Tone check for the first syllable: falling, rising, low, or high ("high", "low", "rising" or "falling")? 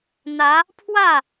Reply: rising